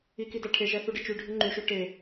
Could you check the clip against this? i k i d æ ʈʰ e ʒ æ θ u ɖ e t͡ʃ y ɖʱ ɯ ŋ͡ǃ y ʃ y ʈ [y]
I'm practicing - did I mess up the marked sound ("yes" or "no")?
yes